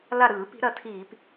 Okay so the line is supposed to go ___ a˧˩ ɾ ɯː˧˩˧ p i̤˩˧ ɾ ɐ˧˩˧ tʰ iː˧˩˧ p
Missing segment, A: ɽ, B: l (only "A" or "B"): B